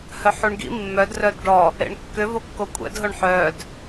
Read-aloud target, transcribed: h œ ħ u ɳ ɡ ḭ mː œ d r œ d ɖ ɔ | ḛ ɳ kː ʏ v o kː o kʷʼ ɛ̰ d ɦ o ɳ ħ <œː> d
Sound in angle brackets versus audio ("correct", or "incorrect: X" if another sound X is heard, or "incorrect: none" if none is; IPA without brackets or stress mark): correct